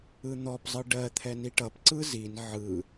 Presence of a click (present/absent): present